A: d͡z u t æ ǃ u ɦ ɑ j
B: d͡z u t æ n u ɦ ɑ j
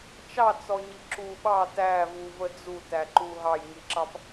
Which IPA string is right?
A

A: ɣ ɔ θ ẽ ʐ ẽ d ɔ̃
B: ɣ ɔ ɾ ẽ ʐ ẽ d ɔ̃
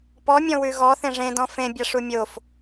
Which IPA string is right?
A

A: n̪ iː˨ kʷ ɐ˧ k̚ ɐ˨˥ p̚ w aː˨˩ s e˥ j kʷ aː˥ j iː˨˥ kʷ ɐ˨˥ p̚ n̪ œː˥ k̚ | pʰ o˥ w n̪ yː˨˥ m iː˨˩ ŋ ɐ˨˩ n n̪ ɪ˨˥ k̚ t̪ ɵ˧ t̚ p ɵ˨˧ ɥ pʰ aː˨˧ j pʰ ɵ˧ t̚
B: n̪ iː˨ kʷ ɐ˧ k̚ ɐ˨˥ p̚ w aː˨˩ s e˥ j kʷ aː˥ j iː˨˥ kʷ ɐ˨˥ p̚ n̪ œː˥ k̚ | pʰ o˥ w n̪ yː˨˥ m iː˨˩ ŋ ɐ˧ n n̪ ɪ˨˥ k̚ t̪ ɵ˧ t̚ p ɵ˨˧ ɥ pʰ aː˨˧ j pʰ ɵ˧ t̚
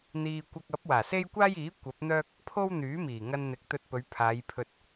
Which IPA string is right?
B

